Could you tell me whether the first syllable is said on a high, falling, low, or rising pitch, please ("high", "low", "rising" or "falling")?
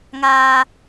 high